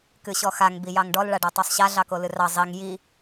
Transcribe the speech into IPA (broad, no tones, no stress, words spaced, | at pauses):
kɨɕɔxaŋ bijɑŋɖɔl ɭaɖɔtˤosˤɕa ɮɑkolɨrɑ zˤiŋ ji